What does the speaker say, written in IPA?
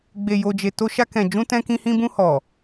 ɡ͡be˨ jo˨d͡ʒe˨ to˧ʃa˧ kɛ̃˨ d͡ʒũ˧tɛ̃˧kĩ˧hĩ˧ bũ˧hɔ˨

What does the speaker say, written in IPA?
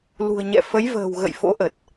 lṳ˨˩ə̯ɲɛ̰˧˨ fə˨˦jvə̤ː˨˩w ɣə̰˧˨jfo̰˧˥ʔə˨˩t̚

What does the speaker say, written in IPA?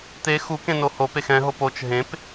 t̪e xu kẽnohopex ɛ̃ɦop ot͡ʃ ɦẽp

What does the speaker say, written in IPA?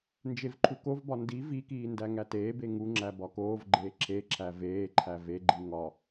nd͡ʒevǃʰukovbɒ ndi vikiː ndæŋæteːbe ŋuŋ͡ǁæ bɒkoːvɡ͡ǃeː ǁʰeǁʰæ veːǃʰæ veɡ͡ǃi ŋɒ

